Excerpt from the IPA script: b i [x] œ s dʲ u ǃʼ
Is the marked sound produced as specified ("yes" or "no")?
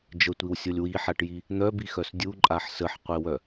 yes